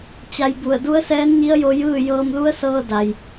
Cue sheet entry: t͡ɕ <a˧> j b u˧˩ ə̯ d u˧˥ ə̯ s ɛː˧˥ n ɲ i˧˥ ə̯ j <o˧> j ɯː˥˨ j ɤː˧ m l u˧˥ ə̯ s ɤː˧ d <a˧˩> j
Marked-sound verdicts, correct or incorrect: correct, correct, incorrect: a˩

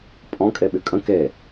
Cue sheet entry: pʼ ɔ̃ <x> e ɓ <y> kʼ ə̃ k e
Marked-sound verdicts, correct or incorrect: incorrect: kʼ, correct

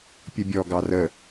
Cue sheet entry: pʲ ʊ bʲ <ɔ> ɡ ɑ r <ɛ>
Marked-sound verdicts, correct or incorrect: correct, incorrect: ə

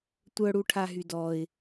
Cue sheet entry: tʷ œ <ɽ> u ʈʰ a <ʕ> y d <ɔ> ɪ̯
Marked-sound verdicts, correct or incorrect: correct, incorrect: ɦ, correct

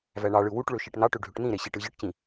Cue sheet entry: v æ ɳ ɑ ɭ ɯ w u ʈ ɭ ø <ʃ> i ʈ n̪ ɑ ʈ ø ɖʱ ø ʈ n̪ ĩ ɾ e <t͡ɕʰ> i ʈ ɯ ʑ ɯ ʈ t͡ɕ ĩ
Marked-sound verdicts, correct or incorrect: correct, incorrect: ɕ

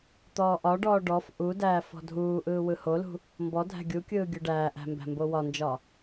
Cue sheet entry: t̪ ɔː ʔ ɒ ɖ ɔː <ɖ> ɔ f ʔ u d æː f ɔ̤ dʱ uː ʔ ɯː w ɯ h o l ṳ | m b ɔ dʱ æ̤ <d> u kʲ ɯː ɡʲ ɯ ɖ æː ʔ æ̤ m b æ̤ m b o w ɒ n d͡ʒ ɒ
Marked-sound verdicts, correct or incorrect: correct, incorrect: ɡʲ

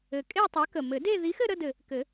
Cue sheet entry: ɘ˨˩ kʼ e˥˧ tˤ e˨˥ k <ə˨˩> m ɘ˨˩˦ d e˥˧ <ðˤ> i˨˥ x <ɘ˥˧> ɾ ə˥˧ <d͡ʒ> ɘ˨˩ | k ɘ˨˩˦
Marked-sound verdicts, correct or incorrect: correct, incorrect: ð, correct, incorrect: d

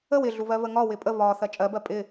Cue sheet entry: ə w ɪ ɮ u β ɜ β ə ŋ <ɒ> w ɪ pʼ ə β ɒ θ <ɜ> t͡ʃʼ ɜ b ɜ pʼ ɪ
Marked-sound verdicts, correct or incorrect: correct, correct

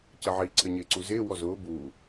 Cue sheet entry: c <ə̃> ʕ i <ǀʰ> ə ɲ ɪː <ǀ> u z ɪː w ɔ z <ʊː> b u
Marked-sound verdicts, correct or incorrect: incorrect: ə, correct, correct, correct

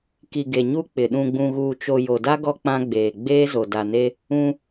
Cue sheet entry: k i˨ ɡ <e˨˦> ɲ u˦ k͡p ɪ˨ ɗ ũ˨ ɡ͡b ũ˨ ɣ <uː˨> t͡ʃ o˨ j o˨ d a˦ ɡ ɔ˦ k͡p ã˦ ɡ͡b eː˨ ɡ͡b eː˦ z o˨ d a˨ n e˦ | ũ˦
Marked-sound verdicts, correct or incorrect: incorrect: e˨, correct

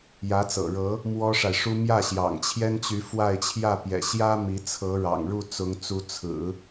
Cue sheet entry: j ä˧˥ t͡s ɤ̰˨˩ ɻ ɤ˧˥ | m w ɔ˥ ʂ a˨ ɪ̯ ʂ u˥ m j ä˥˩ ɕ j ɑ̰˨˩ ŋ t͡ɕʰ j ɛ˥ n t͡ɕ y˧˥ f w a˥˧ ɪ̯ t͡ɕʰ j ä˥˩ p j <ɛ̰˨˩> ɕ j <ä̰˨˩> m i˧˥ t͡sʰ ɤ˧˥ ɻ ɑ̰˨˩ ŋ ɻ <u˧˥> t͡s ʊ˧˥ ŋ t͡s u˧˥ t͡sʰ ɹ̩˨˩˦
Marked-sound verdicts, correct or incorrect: correct, incorrect: ä˥, incorrect: u˥˩

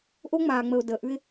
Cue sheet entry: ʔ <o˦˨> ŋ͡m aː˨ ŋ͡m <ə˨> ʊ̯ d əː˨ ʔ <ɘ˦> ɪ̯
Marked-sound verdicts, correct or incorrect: incorrect: o˦, correct, incorrect: ʉ˦

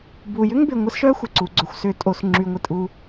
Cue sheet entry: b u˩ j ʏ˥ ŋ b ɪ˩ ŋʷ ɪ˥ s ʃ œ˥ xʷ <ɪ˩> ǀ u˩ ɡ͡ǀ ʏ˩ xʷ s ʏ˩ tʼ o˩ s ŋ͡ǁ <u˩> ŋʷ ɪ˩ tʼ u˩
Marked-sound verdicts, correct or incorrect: correct, incorrect: y˩

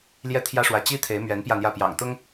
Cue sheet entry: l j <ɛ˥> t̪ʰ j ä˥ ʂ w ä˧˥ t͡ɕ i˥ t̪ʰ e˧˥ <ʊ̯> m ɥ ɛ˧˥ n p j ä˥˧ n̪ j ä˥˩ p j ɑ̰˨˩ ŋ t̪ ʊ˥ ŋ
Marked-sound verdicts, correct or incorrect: incorrect: ɛ˥˩, incorrect: ɪ̯

